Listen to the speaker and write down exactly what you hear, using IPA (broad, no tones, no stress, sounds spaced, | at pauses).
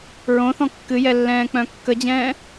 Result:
ɹ õ θ ɔ̃ kː ɨ j ɛ lː ɛ̃ː k͡p œ̃ kː ə d͡ʑ ɛ̃ː